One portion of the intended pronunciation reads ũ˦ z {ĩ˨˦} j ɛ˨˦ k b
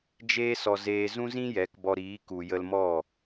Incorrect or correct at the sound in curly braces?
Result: incorrect: ĩ˦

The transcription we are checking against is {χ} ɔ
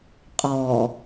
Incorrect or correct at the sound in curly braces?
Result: incorrect: qʼ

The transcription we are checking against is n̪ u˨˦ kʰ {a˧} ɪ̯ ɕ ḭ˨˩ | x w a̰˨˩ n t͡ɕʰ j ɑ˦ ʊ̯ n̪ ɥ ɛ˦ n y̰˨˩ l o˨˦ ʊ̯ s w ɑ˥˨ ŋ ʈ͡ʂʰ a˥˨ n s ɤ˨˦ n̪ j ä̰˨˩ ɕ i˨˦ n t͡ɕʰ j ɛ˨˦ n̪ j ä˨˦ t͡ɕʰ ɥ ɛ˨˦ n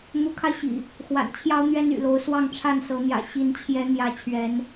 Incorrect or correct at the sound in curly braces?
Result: correct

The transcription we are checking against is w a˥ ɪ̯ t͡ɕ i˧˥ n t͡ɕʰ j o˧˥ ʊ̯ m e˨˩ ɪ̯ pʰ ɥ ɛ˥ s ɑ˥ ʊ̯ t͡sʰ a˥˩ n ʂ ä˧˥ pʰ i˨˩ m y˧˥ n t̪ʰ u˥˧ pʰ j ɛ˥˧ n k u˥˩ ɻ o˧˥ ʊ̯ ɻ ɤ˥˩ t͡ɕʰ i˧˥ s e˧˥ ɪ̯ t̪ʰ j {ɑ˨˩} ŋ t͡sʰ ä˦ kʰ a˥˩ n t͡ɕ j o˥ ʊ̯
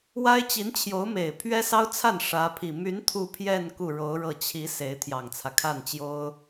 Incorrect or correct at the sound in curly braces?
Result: correct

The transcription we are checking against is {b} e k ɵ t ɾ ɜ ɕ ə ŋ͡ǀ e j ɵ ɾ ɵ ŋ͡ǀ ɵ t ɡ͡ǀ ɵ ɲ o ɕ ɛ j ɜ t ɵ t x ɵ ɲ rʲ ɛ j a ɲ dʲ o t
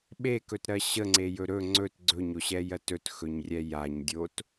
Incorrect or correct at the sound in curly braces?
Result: incorrect: ɓ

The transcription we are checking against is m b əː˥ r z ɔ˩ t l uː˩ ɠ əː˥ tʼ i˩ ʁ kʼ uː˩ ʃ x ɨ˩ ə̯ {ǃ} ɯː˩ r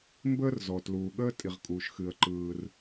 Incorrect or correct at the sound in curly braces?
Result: correct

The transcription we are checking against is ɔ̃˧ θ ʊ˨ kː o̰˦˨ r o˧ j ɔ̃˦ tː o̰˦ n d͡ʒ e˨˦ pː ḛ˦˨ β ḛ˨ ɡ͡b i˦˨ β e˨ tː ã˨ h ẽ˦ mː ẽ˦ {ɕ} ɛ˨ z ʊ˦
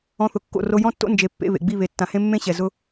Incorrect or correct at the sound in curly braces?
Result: correct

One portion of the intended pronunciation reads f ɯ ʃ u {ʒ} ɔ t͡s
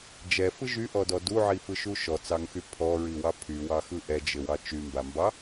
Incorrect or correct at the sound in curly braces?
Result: incorrect: ʃ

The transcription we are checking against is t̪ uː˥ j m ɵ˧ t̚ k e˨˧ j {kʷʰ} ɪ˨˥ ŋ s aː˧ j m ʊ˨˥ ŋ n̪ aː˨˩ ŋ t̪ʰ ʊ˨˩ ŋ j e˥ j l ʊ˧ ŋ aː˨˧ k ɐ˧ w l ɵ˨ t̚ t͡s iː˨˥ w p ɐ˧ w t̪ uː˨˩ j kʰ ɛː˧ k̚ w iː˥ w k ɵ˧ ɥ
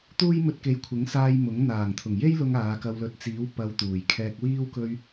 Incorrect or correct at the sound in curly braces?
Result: correct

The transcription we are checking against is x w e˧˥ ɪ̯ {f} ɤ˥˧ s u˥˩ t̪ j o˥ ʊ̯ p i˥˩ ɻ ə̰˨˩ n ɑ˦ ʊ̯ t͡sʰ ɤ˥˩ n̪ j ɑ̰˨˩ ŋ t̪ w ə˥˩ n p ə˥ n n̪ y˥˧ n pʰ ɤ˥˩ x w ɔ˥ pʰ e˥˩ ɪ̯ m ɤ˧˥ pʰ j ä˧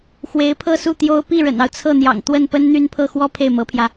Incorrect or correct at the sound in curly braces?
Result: incorrect: pʰ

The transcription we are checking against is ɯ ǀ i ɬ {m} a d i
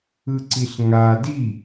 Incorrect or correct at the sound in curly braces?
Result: incorrect: ŋ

